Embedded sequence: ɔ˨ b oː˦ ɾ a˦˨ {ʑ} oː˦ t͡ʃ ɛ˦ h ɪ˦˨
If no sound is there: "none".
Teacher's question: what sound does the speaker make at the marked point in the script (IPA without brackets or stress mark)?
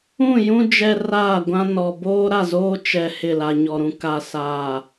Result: z